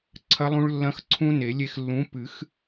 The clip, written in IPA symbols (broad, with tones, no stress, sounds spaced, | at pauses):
ǀʰ ɐ˦˥ lˠ ũ˦˥ ɭ lː ɐ̃˦˥ x ǀʰ ũ˦˥ n e˨˩˦ lʲ e˧ x lː ũ˨˥ p ɨ˨˩˦ x